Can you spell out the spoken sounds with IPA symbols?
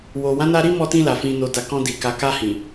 w o˨ w ã˨˦ n a˧ ɾ i˦ m ɔ˧ t ĩ˧ l a˨ f ĩ˨ n o˨ d a˨ k ɔ̃˧ d i˨ k a˨ k a˧ h ĩ˨

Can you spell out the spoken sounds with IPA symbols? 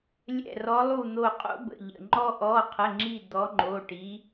lʲ ɛ̰˧˩ r ɔ˨˦ lˠ u˧˩ n̪ o˧˩ qʼ o̰˥ b ə̰˩˧˩ ʎ ə̰˧˩ ŋ͡ǃ ɔ˥ ʔ ɔ˩˧˩ qʰ ə˩˧˩ ŋ͡ǁ i˧˩ d̪ ɔ˨˦ ŋ͡ǃ o˩˧˩ ʈ i˨˦

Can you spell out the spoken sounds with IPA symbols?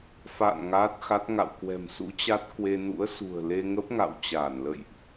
f a̰ː˧˨ n ŋ aː˦˥ t̚ x a˦˥ t̚ ŋ a̰˧˨ w k w ɛ̤˨˩ m s ṵ˧˥ t͡ɕ a˦˥ t̚ k w e˧ n ṵ˧˥ ə̯ s ṳ˨˩ ə̯ l e˧ ŋ ə˦˥ p̚ ŋ a̰˧˨ w t͡ɕ aː˧˩ n l ə̰˧˨ j ʔ

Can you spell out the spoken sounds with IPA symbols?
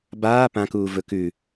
b aː p ã k uː v ɵ k ʉ

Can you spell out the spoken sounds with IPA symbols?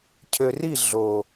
cʰ ø˨ r i˦˨ ɮ o˨

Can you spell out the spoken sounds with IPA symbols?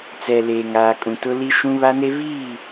t͡s ɛ˨ l eː˨ ŋ aː˨ kʼ ũ˨ t ʊ˦ l i˦ ʃ ũ˦ β a˦ n e˦ v iː˦˨

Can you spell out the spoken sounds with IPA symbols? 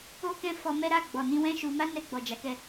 o˦ k ɛ̃˦ f ɔ˧ m ɛ˦ ɾ a˦˨ ɡ͡b ɔ˨ n ĩ˧ w ɛ̃˦ ʃ u˧ m a˦ n ɛ˧ ɡ͡b ɔ˨ d͡ʒ a˨˦ k ɛ˧

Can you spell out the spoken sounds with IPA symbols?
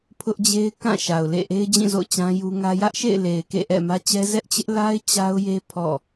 pʰ ʊ˦ ʔ d͡ʑ e˦ ɪ̯ k ã˦˨ ʃ a˨ ʊ̯ l ḛ˦˨ ʔ e˦ ɪ̯ d͡ʑ ĩ˦˨ z o̰˦˨ ʊ̯ t͡ɕ ã˦ j u˦ ŋ ä˦ j ä˦ ʔ ʃ ḛ˦˨ ɪ̯ l e˨ ɪ̯ k ḛ˦˨ ʔ ɛ̰˦˨ m ä˦ t͡ɕ ɛ˦ z ɛ˦ ʔ t͡ɕ ɪ˦ ʔ l a˦ ɪ̯ t͡ɕ a˦ ʊ̯ j e˦ pʰ ɔ̰˦˨

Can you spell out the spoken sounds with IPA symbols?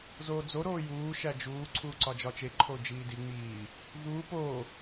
z oː d͡z o ɾ oː j uː ʃ æ d͡ʒ uː ǀʰ uː ǀ ɒ d͡ʒ ɒ t͡ʃ e ǃʰ o d͡ʒ iː d i ŋ͡m iː | v uː p oː

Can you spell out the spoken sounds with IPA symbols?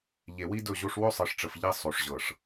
ʎ e˨ w i˦ d ɵ˦˨ ʑ o˦ ʂ w ɵ˦ sˤ ɨ˨ ʂ ʈ͡ʂ ə˨ f ʎ i˦ sˤ o˨ ʂ ʑ ɤ˨ ʂ

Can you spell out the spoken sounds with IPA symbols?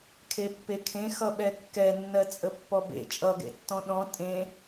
kʰ e pː e kʰ ẽ x ʌ ɓ ɛ kː ɛ nː ɜ t͡sʼ ə pː ɔ b ḛ t͡ʃʼ ʌ ɡ ḛ tː ɔ̃ ɗ ɔ̃ tʼ ẽ

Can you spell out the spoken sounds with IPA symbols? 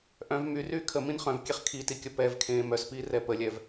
ʔ œ̃ v m y r yː kʰ ə m ĩ n χ œ̃ v kʲ e χ kʰ i t i kʲ ə p ɛ v kʰ ẽː m œ s p iː r ɛ p ə lʲ ɛ v

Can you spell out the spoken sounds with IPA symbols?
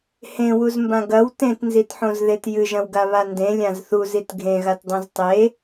h ẽ w u z m b ã ɡ ɐ w t ẽ t n z i t ħ õ z ð e t j ɨ ʒ ɐ̃ w ɡ a β a n d ẽ lʲ ã z θ u z i t ɡʱ ẽ ɣ a t dˤ õ z tˤ e

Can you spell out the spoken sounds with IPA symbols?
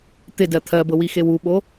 t̪ ɪ d ɜ t̪ʰ ɜ b ɤ w i x e w u ɓ o

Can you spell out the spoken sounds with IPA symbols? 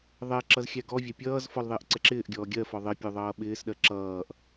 ðˤ ɛ ǁ ʌ z xʲ æ ɡ ɔ vʲ æ pʲ ʌː z f ɔ l ðˤ ɪː ʔ ǀ ɛ ǁ ɪː ʔ ɡʲ ɔː ɡʲ ɜ f ɔ ðˤ ɪ pʲ u ðˤ ʌː ɓ ɪː s ɗ ɜ ǁ ʌː ʔ

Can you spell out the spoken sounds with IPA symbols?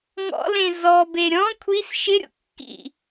ŋ ɔ̰ l ẽ z ɔ b e ɾʲ ɔ̃ kʷʰ i s ʃ ɪ ɾʲ o̰ kː ḭ

